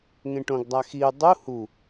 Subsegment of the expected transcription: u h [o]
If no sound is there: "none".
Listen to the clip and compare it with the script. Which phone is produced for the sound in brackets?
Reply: u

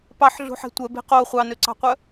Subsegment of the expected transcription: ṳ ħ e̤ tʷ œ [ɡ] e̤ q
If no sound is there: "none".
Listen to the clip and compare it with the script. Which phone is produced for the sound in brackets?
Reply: b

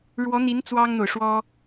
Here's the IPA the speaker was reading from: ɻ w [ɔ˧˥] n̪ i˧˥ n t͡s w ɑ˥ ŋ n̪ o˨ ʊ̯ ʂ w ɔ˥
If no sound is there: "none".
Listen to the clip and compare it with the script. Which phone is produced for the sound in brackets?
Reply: ɔ˧˥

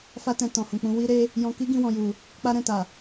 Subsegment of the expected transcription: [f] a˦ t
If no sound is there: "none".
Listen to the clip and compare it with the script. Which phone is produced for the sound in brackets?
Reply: f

